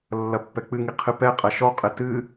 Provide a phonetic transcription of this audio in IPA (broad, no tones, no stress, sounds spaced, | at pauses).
lː ɐ pː ɛ k͡p ɨ ŋ i qʰ ɨ p ɛ qʼ ɐ ʃ ɔ qʼ ɘ t ɨ